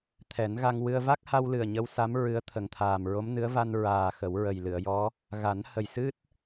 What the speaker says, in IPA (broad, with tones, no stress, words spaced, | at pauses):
t̪ʰɛ˨˩˦n ɣa˧ŋwɨ˧ə̯ va˦˥k̚ha˧wlɨ˨˩ə̯ ɲə˧˥wsa˧˥m ɹɨ˧˥ə̯t̪ʰə˨˩˦ŋt̪ʰaː˨˩m ɹo˧˥mnɨ˧˥ə̯ va˧n ɹaː˨˩ xə˨˩˦wɹə˨˩j lɨ˨˩˨ə̯jɔ˧˥ | ɣa˨˩˦n hə˨˩j sɨ˦˥t̚